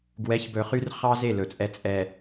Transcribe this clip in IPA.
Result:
ɡwɛ˨˦çbɵ˨χy˦r χɑ˦ze˦˨ lɵ˨t͡sʼɛ˦ t͡sʼɛ˨

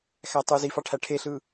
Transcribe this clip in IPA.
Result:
xætˤuzifɑ ʈʰæʈʰeɬɯ

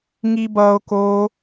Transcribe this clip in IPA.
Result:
ŋibʌo̯ ko

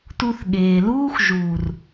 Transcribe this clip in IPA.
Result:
tu˧θɠeː˨luː˦x ʒuː˨r

